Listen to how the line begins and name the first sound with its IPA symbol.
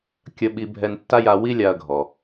kʲ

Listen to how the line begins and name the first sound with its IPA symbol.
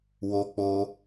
w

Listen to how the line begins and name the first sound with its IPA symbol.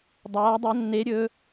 dˤ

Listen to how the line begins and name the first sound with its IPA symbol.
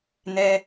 n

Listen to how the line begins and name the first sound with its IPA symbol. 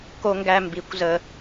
k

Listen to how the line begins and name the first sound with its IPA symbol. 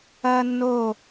ɐː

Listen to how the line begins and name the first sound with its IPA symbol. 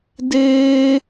d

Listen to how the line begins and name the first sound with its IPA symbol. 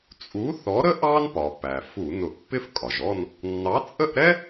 t͡sʼ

